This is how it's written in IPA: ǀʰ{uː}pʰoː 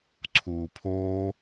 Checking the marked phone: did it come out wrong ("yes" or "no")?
no